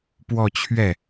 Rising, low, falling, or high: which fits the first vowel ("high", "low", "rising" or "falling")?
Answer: falling